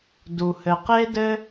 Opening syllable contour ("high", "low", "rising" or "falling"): low